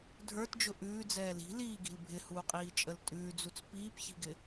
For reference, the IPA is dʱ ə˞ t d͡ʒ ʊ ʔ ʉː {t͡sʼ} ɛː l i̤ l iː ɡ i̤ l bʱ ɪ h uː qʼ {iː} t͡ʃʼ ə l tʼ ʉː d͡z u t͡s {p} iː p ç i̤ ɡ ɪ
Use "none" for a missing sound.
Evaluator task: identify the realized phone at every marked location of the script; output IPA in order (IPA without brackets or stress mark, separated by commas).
d͡z, iː, p